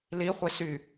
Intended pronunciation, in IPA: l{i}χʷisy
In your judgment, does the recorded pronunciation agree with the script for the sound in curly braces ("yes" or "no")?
yes